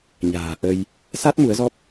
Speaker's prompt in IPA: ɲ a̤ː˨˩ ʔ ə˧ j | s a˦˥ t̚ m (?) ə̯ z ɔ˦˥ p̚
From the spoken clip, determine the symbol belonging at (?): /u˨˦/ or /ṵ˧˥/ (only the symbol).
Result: u˨˦